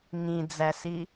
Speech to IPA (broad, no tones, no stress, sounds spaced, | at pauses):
ŋ ĩ d͡z æ s i